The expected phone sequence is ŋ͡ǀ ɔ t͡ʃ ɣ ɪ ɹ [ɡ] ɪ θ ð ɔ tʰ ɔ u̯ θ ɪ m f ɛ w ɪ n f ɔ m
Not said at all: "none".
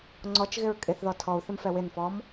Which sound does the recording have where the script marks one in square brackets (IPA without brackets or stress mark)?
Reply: kʼ